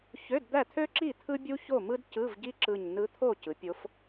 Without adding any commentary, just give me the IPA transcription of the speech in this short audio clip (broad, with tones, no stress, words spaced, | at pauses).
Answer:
çø˧˥˧dd̪æ˥˨t̪ʰø˥ǁi˥˨ t̪ʰɯ˥ bʲu˥ço˥˨mɯ˥d cɯ˧˥˧vɟi˥ǁɯ˧˩ɲ nɯ˧˥t̪ʰo˥˨ cɯ˩˥pʲo˧˥f